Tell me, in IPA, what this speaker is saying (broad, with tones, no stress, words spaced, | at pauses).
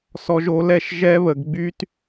sɔ˧ʒo˧lɛ˦˨ʃ ʒɛ˦βə˧ɡɡ͡by˦t